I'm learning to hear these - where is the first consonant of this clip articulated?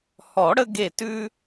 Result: throat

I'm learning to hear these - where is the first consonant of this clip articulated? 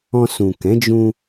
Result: tongue tip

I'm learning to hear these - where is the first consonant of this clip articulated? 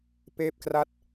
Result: lips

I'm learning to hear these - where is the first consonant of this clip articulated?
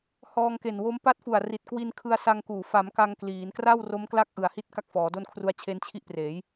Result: throat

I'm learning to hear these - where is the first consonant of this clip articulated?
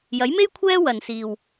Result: palate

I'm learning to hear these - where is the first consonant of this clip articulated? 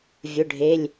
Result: lips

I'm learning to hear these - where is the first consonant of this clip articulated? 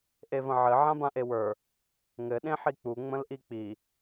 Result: throat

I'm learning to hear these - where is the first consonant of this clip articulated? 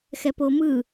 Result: velum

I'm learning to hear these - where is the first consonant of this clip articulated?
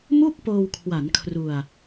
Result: lips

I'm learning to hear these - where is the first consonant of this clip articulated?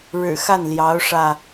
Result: retroflex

